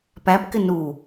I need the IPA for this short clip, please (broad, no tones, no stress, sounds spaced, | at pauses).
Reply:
p æ p k ɪ n u